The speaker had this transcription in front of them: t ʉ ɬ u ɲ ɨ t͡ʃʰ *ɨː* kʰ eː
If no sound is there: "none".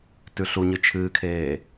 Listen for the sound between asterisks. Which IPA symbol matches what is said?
ɨː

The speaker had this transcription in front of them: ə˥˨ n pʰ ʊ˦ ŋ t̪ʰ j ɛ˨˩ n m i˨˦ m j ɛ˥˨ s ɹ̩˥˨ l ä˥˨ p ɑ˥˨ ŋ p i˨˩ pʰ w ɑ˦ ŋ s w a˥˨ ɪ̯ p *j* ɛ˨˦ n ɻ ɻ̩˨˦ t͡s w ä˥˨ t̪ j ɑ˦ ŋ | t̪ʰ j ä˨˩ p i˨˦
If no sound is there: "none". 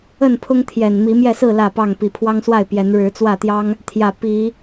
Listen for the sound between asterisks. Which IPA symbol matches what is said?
j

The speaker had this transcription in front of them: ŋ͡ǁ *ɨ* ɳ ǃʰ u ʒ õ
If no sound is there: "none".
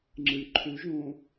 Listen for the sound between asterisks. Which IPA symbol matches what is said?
ɨ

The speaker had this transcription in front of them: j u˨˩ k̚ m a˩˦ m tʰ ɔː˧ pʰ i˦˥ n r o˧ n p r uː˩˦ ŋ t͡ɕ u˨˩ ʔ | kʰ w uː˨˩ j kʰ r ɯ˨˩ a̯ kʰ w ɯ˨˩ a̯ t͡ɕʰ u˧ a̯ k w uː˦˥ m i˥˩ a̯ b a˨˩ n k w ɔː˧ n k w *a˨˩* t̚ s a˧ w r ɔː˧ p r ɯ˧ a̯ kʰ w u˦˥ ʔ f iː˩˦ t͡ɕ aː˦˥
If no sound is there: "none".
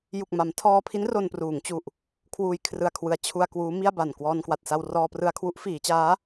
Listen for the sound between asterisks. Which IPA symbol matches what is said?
a˨˩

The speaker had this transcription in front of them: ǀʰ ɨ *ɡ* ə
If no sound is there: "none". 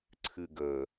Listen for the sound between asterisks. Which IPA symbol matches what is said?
ɡ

